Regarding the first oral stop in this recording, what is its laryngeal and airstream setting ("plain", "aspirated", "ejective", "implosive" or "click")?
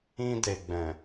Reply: plain